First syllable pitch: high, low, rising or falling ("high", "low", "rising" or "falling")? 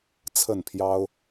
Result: falling